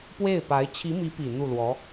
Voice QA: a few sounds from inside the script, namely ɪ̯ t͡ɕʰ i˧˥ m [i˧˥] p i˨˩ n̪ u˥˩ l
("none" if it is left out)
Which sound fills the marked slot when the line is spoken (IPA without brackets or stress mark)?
i˧˥